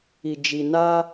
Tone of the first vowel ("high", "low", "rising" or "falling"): low